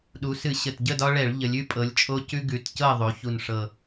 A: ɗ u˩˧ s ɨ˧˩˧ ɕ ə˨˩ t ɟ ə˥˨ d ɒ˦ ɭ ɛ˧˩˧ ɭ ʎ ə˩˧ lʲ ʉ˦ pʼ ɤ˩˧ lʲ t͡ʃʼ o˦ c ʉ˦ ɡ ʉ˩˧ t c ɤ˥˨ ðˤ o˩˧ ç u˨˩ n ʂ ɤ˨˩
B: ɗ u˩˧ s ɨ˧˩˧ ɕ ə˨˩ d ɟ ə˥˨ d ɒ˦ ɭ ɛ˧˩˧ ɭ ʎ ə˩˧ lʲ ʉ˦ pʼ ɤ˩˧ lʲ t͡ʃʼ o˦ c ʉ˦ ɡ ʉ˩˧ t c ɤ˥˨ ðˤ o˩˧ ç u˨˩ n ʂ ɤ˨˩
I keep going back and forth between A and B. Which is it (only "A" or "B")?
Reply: A